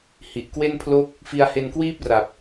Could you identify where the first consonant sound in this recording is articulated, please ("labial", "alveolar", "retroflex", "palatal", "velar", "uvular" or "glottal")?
glottal